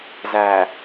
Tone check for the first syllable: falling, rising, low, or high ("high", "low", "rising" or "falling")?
low